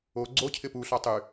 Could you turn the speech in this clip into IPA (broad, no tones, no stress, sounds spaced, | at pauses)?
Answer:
o ɡ͡ǀ o cʰ ɪ p u ɬ ɒ tˤ y